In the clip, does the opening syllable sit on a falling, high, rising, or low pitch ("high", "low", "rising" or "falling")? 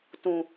low